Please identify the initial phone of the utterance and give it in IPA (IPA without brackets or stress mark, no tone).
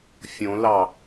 fʲ